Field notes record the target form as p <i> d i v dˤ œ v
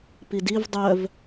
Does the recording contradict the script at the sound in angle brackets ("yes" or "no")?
no